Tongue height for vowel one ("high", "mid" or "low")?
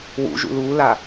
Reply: high